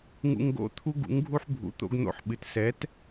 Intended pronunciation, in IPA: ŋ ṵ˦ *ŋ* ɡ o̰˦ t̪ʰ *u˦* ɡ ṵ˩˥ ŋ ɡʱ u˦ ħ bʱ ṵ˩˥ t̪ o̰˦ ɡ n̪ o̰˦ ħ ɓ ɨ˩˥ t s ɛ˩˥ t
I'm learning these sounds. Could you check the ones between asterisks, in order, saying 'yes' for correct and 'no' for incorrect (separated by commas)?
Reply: yes, yes